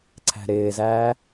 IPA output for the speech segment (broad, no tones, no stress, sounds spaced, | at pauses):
ǀʰ æ̤ ɾ ɪː z æː